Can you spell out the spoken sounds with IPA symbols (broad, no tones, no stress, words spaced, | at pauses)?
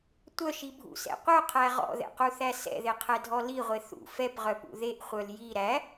tʷœʃibʱṵsɛ̰ qʷœqʰæ ʁɔ̰ðɛ̰quθæ sɛ̰ðeqʰɛdʱɔ liʁʷe θṵ fɛpʁœpṵ ðeʔχʷœl ji ɾæ